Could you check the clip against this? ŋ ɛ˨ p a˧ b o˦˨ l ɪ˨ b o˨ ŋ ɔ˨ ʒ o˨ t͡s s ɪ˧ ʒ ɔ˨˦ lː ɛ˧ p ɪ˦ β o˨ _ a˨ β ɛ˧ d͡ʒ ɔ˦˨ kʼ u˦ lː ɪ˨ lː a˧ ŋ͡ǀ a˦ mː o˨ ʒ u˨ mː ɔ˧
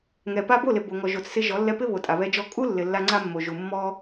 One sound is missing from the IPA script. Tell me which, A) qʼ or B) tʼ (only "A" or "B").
B